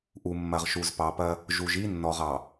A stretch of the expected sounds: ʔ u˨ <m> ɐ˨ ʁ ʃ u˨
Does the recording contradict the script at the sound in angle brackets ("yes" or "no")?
yes